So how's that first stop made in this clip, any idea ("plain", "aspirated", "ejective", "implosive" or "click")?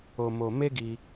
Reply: plain